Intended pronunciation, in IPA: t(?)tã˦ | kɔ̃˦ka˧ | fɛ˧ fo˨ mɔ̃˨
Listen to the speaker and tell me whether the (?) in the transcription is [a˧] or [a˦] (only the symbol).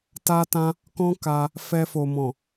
a˦